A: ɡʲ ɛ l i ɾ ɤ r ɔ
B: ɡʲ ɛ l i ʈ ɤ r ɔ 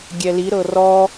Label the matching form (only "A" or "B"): A